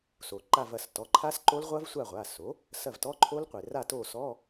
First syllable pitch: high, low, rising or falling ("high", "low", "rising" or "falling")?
low